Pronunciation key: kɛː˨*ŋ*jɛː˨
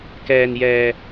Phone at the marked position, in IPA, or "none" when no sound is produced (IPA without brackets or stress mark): n